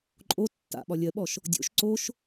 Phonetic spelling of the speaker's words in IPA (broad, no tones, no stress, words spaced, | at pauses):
ǃʼo tːa̰ɓɒ lʲɜɓɔʃ | dʲo̰ʃ ǀoʃ